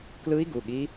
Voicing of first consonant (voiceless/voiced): voiceless